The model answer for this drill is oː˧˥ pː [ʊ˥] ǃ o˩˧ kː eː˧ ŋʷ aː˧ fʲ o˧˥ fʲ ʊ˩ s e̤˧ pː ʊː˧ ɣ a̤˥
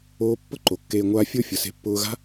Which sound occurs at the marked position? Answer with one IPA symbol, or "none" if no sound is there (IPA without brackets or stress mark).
ʊ˥